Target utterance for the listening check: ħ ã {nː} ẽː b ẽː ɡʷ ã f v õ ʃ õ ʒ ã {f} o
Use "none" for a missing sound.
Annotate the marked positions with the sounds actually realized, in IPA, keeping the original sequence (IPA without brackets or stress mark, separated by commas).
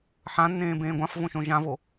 nː, v